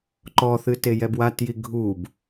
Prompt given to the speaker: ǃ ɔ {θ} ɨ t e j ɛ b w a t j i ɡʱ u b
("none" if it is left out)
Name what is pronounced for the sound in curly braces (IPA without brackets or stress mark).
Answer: θ